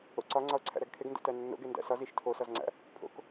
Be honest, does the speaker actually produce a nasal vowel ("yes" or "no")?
no